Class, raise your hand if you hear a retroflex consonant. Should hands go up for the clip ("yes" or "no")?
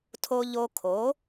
no